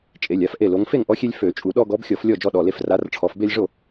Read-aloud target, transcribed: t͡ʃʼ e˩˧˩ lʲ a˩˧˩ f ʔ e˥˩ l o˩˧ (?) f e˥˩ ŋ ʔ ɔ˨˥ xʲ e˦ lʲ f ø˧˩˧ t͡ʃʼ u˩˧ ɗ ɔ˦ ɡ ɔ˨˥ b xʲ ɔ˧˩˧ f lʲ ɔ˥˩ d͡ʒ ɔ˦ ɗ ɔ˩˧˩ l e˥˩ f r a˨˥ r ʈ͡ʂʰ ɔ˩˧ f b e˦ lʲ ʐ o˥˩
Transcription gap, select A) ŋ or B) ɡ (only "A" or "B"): A